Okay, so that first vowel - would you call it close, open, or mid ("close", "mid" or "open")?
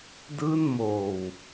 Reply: close